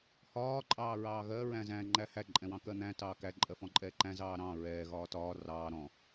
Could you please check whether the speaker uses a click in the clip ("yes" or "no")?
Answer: yes